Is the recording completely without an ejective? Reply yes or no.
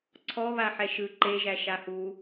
yes